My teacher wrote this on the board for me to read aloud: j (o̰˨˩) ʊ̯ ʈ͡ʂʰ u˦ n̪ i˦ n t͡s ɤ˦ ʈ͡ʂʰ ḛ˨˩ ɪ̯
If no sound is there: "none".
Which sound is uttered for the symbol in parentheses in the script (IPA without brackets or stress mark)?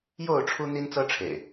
o˥˨